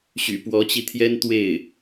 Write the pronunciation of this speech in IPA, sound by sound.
ɕ y̰˨˩ p w ɔ˧˥ t͡ɕ i˧ t̪ʰ j ɛ˥ n t̪ w e˥˩ ɪ̯

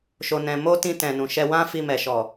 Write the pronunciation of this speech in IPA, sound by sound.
ʃ o˨ n ɛ̃˨ m o˧ t ĩ˧ t ɛ̃˨ n ũ˨ ʃ ɛ˧ w ã˦ f i˧ m ɛ˨ ʃ ɔ˨

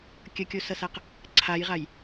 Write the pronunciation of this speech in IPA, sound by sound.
kʲ ə kʲ o s ʌ s a q | ǀʰ a j ʁ a j

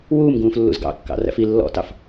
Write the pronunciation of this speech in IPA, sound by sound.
w uː m ɡ ũː f lː ṵ z ɡ ɑ̰ kː ɑ̰ r æ̰ f i lː ɔ̰ t ɑ f

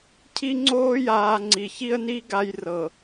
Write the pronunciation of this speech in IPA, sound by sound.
cʰ i˦ ŋ͡ǀ oː˦ j aː˨ ŋ͡ǀ i˨ ç i˦ ə̯ n i˦ ɡ a˦ j r ɤ˨

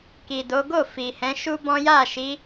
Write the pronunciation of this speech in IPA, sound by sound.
k i˨ d o˨˦ ɡ o˦˨ f i˨ h ɛ̃˨˦ ʃ u˦ b ɔ̃˦ j a˦˨ ʃ i˨˦

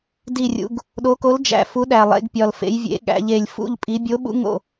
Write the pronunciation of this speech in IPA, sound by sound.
d i˥˨ rʲ ṵ˨˥ ɡ | ɗ o˨˥ k o˨˥ l d͡ʒ æ̰˨˩ f u˨˥ ɗ æ˨˩ lˠ ḛ˩˧ ɡ pʲ ɒ˨˩ l f ḛ˩˧ j vʲ ḛ˩˧ ɠ æ̰˩˧ ʎ e˨˩ lʲ f ṵ˥˨ ʎ pʼ i˨˥ bʲ o˨˥ ɓ ṵ˨˥ ŋ o̰˥˨

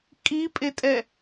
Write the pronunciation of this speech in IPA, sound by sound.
kʼ i pʼ e tʼ ɛ

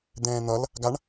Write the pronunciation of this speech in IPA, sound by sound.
d̪ ɛ̃ː n̪ ʌ l | ɡ a ɳ

